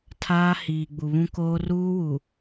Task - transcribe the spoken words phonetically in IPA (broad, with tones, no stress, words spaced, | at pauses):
tʰaː˦ hiː˨ ɡ͡bu˨βũ˦koː˦ ruː˦wu˨